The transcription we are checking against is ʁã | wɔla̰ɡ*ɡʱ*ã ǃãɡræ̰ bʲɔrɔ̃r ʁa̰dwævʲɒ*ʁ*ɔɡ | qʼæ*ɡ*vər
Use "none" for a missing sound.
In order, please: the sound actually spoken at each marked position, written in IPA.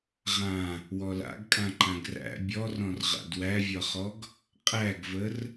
kʼ, χ, ɡ

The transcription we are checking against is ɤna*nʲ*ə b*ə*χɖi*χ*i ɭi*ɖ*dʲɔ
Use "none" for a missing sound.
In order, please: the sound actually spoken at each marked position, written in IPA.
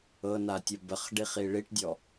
tʲ, ə, χ, ʈ

